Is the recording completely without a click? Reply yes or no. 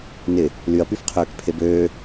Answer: yes